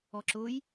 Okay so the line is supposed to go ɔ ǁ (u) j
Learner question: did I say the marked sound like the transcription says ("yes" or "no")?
no